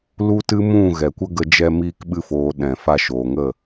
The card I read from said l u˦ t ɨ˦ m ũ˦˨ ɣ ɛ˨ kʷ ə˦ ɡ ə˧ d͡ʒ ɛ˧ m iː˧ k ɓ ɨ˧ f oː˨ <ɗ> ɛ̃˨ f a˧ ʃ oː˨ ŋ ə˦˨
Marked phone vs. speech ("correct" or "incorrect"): correct